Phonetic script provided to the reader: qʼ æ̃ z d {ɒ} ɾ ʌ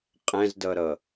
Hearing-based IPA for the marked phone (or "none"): ʌ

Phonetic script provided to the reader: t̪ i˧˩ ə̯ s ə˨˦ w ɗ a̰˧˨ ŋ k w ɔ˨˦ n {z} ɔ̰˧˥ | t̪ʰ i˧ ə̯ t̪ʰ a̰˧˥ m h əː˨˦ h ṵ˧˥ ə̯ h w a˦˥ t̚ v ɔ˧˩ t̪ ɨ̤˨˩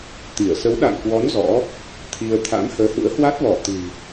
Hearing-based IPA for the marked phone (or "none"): z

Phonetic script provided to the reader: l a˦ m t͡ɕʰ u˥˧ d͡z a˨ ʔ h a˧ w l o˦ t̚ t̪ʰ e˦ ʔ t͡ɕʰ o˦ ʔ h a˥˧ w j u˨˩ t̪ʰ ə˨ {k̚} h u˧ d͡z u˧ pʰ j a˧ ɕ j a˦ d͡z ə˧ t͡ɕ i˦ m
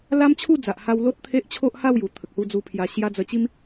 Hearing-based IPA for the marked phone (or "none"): k̚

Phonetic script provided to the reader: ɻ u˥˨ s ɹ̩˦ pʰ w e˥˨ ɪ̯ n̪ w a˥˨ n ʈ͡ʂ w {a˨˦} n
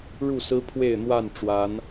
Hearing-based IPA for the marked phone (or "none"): a˨˦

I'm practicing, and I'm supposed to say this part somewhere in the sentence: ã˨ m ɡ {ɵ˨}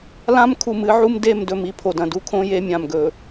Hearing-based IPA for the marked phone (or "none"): ɵ˨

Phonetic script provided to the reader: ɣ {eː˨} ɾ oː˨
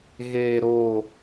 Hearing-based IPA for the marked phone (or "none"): eː˨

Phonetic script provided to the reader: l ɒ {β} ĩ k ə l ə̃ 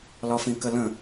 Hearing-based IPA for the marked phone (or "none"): f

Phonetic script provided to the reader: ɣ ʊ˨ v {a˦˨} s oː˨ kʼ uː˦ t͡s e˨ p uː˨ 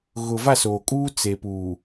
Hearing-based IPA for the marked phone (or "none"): a˦˨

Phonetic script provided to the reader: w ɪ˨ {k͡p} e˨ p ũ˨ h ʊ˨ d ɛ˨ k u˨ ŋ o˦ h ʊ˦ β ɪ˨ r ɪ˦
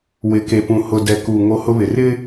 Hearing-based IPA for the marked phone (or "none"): k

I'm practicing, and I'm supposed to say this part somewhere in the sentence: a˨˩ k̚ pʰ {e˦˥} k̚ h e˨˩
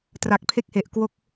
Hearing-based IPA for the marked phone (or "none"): e˥˩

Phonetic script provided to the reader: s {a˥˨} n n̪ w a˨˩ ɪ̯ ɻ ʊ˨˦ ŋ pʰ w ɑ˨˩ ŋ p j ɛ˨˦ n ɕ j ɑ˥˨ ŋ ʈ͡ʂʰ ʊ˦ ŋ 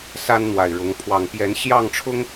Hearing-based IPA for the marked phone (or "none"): a˦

